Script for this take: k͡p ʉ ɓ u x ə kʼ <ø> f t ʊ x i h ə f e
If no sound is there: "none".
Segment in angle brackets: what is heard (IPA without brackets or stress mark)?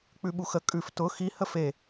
ʉ